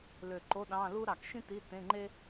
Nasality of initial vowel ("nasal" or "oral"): oral